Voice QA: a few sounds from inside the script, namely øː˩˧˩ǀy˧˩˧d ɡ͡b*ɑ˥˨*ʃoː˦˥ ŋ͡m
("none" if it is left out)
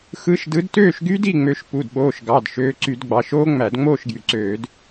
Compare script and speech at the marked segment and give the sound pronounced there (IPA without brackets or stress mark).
ɑ˩˧˩